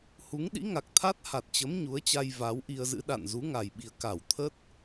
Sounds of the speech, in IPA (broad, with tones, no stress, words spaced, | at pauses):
hu˨˦ŋɗḭ˧˥ŋa˨˩k̚ t̪ʰa˦˥t̚ha˨˩t̚t͡ɕə˨˦m ɲu˨˦ə̯t͡ɕa˧j va˨˦wʔi˧ə̯zɨ̰˧˥ ɗa̰˧˨nzu˨˦ŋa˨˩jɓi˨˩ə̯ ka˧˩wt̪ʰə˦˥t̚